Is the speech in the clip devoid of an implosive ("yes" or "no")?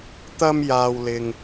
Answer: yes